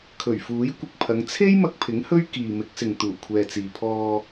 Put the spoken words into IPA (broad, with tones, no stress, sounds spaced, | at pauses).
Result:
kʰ ɵ˨˩ ɥ f uː˨˥ j kʷ ɪ˧ k̚ pʰ ɐ˨˧ ŋ t͡sʰ e˥ j m ɐ˧ k̚ pʰ ɪ˨˥ ŋ h ɵ˥ ɥ k iː˨ m ɪ˨˥ k̚ s ɪ˨ ŋ t̪ uː˨˩ kʷʰ ɛː˨ t͡s iː˨ pʰ ɔː˧